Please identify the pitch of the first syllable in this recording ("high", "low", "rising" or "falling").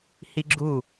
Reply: high